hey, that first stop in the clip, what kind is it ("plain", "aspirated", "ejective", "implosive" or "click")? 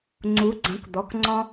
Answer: click